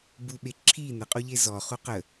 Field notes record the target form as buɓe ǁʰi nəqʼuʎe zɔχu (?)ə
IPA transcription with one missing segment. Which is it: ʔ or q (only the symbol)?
q